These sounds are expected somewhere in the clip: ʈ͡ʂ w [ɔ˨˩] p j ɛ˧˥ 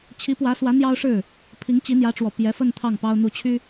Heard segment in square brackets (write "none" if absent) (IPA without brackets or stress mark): ɔ˨˩